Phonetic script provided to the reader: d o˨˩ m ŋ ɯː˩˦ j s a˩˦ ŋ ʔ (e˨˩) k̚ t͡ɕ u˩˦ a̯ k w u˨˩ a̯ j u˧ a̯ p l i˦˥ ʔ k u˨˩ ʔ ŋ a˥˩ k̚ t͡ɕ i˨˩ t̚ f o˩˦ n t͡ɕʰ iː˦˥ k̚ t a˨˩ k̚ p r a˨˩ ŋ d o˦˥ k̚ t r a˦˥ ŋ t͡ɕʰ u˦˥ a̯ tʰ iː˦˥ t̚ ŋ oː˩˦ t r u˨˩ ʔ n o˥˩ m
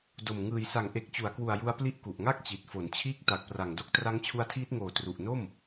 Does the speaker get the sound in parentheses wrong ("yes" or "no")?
no